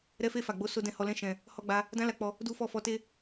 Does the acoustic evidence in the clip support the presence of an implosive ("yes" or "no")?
no